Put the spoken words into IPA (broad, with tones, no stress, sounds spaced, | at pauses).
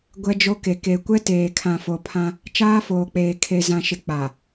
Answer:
ɡʷ ɛ˦ d͡ʒ o˦ k e˨ k e˨ kʷ ɛ˦ t eː˨ kʰ ã˨ f o˨ pʰ ã˦ | t͡ʃ aː˦ f oː˨ k͡p eː˨ kʰ e˨ z ã˨ ʃ ɪ˨ k͡p a˨